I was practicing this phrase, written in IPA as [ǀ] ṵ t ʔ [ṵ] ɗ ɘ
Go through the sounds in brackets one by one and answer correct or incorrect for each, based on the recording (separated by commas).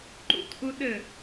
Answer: incorrect, incorrect